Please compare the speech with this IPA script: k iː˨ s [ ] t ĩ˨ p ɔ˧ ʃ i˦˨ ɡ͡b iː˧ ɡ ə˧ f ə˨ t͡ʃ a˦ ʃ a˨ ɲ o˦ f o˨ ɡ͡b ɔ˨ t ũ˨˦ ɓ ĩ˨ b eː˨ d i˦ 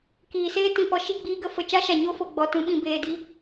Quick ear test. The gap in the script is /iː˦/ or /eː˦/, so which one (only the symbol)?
eː˦